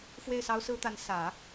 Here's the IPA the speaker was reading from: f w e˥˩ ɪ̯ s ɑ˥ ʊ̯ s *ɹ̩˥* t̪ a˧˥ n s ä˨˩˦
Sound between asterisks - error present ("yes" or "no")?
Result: no